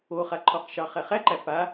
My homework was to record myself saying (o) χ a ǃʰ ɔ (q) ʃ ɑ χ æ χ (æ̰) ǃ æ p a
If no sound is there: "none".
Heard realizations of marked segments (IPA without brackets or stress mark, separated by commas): o, q, æ